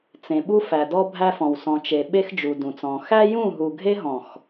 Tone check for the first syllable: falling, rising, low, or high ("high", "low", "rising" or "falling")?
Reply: low